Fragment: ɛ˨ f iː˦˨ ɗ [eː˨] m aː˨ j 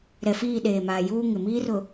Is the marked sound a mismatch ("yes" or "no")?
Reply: no